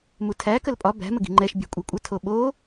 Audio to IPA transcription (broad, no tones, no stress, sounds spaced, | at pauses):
m u tʰ æ k ə l pʼ ɒ b æ̤ m ə ɡ i̤ ŋ͡ǃ ɛ ʃ bʲ ɛ̤ kʷʼ ɛ kʷʼ ə tʰ o ɓ o